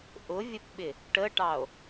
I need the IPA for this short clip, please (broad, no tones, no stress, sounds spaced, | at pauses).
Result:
ʔ ʊ vʲ ə p ɓ ɪ | ʈ ə ʈ ɑ o̯